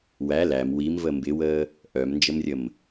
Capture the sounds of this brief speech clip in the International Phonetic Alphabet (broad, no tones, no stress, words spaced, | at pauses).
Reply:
wæ læm wimvə mbɪwəː | ʔœmnd͡ʒəmrʲəm